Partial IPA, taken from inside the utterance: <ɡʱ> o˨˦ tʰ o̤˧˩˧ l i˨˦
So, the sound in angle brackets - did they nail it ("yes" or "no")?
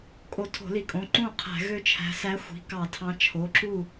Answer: no